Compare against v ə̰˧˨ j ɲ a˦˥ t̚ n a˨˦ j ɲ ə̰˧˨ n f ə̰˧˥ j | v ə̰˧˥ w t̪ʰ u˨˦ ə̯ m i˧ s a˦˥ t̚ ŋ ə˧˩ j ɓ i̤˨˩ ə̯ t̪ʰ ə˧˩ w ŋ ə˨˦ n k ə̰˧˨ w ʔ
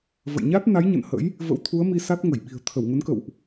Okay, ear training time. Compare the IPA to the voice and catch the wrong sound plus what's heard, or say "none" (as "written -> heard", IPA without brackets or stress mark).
f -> h